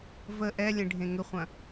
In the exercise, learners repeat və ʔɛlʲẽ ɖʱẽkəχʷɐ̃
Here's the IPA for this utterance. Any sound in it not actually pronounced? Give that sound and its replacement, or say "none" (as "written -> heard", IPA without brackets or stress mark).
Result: k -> ŋ